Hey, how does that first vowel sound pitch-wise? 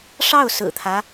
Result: falling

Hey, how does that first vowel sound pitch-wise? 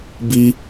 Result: high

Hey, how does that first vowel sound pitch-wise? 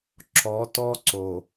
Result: rising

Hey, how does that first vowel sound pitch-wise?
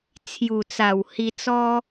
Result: low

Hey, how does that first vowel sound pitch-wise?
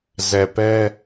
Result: low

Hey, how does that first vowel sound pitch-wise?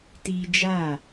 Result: high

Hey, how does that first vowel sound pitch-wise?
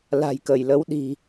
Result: low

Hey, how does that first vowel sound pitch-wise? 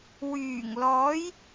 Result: low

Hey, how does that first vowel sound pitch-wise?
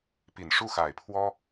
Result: low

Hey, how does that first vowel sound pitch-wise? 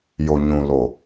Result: low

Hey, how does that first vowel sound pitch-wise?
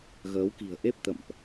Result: rising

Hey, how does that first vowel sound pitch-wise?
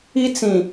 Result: high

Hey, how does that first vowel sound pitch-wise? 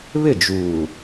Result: falling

